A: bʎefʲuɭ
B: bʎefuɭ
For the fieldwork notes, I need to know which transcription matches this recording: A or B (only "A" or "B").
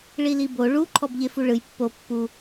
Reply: B